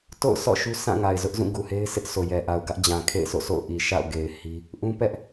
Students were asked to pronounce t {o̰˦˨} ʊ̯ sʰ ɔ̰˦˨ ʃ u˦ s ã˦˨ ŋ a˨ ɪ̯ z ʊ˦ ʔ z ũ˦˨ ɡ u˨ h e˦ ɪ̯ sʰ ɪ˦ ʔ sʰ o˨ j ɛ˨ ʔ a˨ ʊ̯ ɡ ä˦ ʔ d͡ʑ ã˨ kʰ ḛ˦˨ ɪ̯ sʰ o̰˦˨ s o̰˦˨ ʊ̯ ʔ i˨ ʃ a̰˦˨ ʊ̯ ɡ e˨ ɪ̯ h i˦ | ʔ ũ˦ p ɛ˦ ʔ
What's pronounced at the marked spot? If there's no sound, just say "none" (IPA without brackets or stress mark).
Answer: o̰˦˨